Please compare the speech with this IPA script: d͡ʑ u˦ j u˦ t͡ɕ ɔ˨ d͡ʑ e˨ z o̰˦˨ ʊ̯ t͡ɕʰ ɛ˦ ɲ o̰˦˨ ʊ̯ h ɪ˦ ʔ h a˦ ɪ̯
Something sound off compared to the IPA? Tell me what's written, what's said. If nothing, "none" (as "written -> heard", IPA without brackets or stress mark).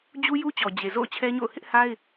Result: none